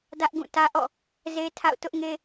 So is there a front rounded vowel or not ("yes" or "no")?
no